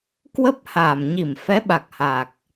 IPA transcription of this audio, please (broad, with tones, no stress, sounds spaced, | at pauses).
k w ə˦˥ p̚ h aː˧˩ m ɲ i˧˩ m f ɛ˨˦ ɓ a˨˩ k̚ h aː˨˩ k̚